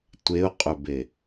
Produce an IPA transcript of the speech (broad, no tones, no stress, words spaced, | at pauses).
tʷeʊ̯qʼʏbe